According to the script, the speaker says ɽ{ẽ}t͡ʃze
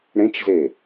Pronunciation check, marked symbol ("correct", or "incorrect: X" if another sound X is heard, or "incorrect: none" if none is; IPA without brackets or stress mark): correct